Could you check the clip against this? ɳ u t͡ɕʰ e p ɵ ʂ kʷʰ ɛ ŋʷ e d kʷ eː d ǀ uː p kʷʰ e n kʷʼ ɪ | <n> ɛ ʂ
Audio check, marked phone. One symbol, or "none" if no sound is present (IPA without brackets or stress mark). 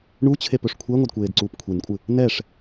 n